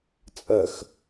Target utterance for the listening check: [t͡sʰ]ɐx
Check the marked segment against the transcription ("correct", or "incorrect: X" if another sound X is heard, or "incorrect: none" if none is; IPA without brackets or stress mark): incorrect: t͡sʼ